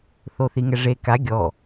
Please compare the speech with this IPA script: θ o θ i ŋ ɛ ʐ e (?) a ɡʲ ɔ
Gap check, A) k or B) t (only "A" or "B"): A